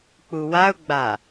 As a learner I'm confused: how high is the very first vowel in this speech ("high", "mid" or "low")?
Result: high